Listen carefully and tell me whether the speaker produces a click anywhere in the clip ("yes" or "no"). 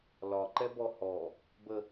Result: yes